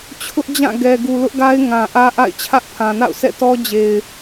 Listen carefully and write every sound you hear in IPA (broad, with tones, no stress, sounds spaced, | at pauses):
t͡ɕʰ ʊ˦ ʔ d͡ʑ ã˦˨ ɡ ɛ˨ ɡ u˨ l ʊ˦ ʔ ɡ a˦ ɪ̯ ŋ ã˨ ʔ ä˦ ʔ a̰˦˨ ɪ̯ t͡ɕʰ ä˦ ʔ pʰ ã˨ n a̰˦˨ ʊ̯ s ɛ̰˦˨ t ɔ˦ d͡ʑ e˨ ɪ̯